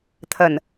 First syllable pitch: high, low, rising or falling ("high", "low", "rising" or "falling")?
low